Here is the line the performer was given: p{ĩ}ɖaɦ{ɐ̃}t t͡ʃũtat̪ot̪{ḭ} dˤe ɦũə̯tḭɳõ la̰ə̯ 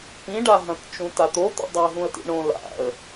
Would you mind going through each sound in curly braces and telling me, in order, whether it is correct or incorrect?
correct, correct, correct

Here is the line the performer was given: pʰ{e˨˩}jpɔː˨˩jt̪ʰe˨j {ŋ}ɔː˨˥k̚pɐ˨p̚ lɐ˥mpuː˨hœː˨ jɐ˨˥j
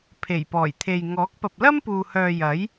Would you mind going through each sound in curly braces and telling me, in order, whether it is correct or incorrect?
correct, correct

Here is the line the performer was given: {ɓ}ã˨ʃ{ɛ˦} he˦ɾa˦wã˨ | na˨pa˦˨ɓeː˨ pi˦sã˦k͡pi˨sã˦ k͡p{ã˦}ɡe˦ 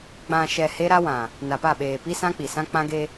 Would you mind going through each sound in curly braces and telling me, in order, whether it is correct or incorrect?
incorrect, incorrect, correct

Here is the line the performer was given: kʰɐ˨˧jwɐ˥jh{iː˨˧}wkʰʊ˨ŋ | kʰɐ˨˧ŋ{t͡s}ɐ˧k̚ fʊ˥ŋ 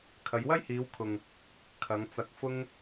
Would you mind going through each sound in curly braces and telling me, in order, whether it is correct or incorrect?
correct, correct

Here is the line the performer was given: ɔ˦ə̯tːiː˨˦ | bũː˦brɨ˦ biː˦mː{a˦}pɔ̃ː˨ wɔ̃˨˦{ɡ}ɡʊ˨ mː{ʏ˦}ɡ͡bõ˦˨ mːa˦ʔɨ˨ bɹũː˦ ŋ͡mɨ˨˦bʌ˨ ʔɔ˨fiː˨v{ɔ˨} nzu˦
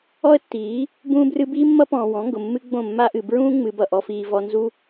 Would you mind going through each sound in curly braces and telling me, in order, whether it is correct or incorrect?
incorrect, incorrect, incorrect, correct

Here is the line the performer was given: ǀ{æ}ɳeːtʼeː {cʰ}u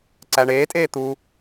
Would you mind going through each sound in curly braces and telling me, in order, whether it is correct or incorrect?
correct, incorrect

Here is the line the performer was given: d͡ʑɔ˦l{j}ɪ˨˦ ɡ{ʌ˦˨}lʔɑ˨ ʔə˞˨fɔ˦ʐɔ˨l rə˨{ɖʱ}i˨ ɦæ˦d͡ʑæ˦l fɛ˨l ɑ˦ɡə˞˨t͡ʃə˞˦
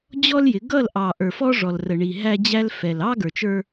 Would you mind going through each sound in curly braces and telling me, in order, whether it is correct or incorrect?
correct, correct, incorrect

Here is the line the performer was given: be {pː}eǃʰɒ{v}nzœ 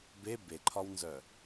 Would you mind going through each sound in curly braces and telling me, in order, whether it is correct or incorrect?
incorrect, incorrect

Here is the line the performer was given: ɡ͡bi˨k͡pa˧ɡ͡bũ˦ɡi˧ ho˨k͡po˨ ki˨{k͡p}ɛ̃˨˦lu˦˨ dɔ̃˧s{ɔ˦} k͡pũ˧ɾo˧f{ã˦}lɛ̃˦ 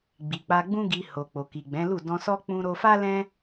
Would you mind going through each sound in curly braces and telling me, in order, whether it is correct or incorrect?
incorrect, correct, incorrect

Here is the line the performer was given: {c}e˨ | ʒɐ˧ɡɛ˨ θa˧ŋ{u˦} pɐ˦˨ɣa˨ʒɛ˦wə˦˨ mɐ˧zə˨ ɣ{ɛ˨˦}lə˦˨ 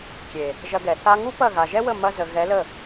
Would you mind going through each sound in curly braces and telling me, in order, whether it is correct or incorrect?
incorrect, correct, correct

